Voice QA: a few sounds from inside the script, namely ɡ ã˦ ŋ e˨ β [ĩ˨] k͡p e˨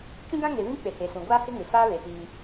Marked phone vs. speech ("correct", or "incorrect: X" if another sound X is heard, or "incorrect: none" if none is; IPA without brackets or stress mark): incorrect: ĩ˦